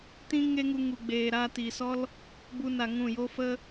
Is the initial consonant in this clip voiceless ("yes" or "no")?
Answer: yes